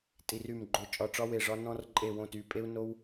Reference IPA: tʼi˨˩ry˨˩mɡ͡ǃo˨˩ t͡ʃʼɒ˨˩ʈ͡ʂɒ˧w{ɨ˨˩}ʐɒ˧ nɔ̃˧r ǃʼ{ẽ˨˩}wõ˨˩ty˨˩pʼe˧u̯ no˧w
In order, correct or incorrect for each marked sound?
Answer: incorrect, incorrect

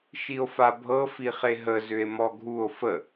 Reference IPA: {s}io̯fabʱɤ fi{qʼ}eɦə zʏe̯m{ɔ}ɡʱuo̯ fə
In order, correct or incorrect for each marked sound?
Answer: incorrect, incorrect, correct

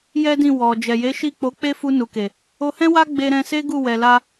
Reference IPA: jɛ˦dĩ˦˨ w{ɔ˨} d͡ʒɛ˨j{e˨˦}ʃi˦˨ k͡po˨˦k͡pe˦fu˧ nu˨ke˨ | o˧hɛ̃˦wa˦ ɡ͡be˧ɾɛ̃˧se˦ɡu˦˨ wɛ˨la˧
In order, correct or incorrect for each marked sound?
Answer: correct, correct

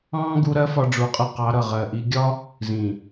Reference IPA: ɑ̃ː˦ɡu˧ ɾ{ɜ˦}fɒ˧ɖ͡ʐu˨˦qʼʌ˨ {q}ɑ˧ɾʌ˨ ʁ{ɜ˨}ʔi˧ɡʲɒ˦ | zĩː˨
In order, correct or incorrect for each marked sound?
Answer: correct, correct, correct

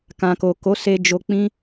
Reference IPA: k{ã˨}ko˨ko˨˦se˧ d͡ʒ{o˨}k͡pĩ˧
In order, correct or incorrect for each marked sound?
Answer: correct, correct

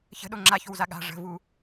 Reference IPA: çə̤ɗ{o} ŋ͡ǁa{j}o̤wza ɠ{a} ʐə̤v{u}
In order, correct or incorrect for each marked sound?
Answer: correct, incorrect, incorrect, correct

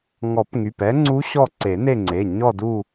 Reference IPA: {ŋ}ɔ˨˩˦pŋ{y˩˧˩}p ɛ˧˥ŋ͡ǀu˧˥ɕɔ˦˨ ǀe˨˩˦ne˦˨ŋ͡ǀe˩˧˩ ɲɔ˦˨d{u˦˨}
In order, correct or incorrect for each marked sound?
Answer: correct, correct, correct

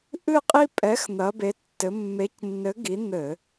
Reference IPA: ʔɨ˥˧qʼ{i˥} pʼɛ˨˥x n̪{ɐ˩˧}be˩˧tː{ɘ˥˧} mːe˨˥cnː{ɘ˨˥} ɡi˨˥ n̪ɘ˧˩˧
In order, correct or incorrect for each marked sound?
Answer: correct, correct, incorrect, correct

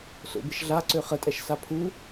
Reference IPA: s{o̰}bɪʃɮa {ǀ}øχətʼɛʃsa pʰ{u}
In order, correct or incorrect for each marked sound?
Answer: correct, correct, correct

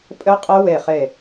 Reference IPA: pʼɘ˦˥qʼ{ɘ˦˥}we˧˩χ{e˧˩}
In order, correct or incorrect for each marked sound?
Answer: correct, correct

